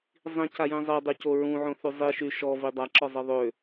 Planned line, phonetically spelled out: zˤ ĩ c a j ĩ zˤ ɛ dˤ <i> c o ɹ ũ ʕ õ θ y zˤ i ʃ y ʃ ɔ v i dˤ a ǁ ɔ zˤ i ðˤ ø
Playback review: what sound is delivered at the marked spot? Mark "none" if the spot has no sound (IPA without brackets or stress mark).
y